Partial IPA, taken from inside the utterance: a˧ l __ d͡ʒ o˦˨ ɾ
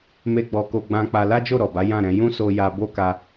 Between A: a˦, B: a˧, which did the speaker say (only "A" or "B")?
A